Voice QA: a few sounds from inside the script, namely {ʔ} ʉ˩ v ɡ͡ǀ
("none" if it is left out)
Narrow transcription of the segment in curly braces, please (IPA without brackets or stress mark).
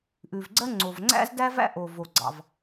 ʔ